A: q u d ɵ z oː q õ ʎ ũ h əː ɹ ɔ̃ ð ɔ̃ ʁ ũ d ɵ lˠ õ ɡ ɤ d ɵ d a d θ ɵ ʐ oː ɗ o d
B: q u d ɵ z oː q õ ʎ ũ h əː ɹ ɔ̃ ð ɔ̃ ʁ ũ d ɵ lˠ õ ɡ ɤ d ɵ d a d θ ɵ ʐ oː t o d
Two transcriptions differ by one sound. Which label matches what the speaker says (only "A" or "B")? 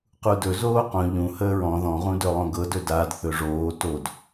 B